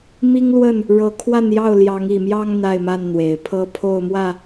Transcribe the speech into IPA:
mi˦ŋlwə˥˨n | ɻɤ˨˦kʰwa˥˨njɑ˥˨ʊ̯ ljɑ˨˦ŋi˨˩mjɑ˦ŋ n̪a˥˨ɪ̯ma˥˨nn̪we˨˩ɪ̯ pʰɤ˦pʰo˥˨ʊ̯mwä˥˨

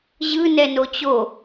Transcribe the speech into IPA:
ʑɯ nɛnot͡ɕo

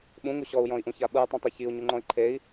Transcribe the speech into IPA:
ɓũŋu ɕɔu̯jɔ̃i̯ʔũça ɓɯy̯tˤũtˤe çiu̯ɲuŋ͡ǃɔ̃i̯ ǃʰei̯

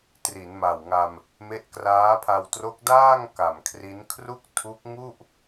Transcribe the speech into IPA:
tri˩˦n ma˨˩wŋa˧m | me˦˥ʔkraː˦˥pʰa˧w tro˦˥k̚daː˥˩ŋ ka˨˩m kʰri˦˥n kʰru˥˩k̚tʰu˦˥k̚ ŋu˥˩ʔ

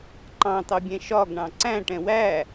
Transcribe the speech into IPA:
ǃɑ̃t̪ɑbʲɛ̃ ʃɒɡɳɑ̃ ǀæ̃ʈɛ̃ wæ

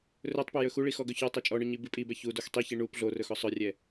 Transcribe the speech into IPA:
rɵtˤpɵ jɵxuɭi xɔɡɵçɔtˤɛ t͡ʃʼɔɳœ ɲibipʼibɛ çu doxtˤiçi ɳup ɮorɵx ɔsˤœrʲɛ

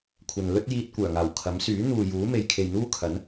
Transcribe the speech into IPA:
kʷʰɐ˨n lɵ˥t̚ jiː˧t̚kʷœː˨˩ŋaː˨˩w kʰɐ˨˥msyː˨˥ n̪uː˨ juː˨˥me˨j kʰe˨jn̪uː˥kʰɐ˨˥n

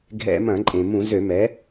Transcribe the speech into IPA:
ɡʱɛ̰˧˩˧mɐ̃˧˩˧ǃʼẽ˩mũ˧˩˧ zø˧˩˧ mɛ˩˥

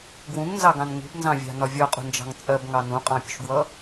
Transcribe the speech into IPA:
ɡwũŋnzɑɡɑ̃n ŋṳbnzɑ̃vʲɑ̤nɒ vʲɒqʼṳnd͡ʒɑ̤ŋ t͡sʼɜbŋɑ nũqʼɑ̃pʲṳʃɡwʌ

